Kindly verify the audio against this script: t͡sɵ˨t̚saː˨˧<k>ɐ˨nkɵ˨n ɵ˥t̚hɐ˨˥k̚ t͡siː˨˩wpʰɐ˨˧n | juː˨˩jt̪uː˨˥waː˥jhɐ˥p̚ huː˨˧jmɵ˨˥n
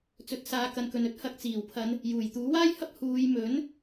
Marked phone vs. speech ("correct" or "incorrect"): correct